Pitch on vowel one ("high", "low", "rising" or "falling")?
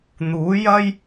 rising